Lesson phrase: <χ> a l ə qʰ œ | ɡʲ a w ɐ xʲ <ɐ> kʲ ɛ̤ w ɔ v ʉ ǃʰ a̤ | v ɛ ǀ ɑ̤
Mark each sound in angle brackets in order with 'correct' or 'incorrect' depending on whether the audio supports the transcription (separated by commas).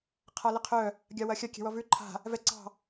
incorrect, correct